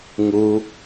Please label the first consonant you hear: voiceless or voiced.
voiced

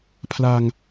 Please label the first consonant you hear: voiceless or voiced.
voiceless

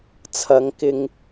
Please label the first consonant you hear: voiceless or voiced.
voiceless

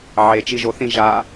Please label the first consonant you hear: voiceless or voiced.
voiced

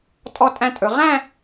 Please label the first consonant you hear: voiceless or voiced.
voiceless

